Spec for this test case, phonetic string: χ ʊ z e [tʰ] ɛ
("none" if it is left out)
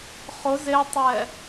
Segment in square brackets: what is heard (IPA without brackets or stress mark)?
tˤ